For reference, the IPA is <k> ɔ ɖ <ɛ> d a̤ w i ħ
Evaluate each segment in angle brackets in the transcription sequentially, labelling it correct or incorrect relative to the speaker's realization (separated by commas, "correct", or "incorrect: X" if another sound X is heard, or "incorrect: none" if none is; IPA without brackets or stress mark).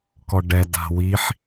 correct, correct